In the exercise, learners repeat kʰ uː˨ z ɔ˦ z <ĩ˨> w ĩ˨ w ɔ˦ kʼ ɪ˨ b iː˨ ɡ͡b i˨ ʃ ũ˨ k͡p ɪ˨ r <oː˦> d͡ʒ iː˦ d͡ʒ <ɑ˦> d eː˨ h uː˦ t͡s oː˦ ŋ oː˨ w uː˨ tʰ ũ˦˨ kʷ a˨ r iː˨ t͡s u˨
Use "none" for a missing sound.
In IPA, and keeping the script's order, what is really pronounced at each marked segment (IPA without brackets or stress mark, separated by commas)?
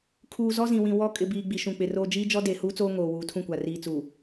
ĩ˨, oː˦, ɔ˦